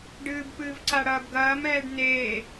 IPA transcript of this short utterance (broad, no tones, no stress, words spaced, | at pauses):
ɖɨːbpɨːv ǀaɽɐːbɡɐːmɛːɖ n̪eː